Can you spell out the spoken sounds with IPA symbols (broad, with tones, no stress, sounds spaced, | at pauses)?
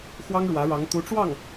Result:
x w ɑ˥ ŋ ɻ w ä˧˥ ɻ ɑ˧˥ ŋ t̪ u˧˥ ʈ͡ʂ w ɑ˥˩ ŋ